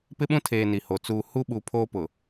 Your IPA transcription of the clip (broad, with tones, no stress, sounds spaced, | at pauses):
p ɪ˦ ɓ ũ˦ tʰ eː˨ n i˨ h oː˨ t͡s uː˨ h u˦ ɓ u˨ pʰ oː˦ p ʊ˨